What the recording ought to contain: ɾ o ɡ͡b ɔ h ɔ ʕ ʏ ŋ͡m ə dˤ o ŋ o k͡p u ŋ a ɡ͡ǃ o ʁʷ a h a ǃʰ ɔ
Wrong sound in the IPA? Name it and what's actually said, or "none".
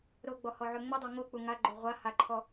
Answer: none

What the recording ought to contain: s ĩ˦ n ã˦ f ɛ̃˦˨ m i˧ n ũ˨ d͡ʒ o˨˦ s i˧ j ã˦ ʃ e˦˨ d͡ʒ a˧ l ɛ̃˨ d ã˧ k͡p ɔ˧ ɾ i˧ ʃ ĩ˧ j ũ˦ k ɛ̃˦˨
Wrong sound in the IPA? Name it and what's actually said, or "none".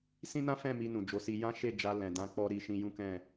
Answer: none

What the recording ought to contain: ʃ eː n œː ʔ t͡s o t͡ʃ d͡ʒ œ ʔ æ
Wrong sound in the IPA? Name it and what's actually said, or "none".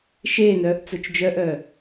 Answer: æ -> œ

